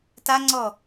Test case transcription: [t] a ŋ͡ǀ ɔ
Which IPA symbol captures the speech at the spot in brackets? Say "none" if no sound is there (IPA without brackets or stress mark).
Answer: t